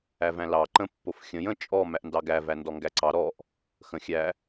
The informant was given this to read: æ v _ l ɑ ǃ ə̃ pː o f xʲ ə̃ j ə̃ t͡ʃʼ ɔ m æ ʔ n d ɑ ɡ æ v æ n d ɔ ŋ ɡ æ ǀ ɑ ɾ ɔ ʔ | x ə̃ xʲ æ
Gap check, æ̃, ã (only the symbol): æ̃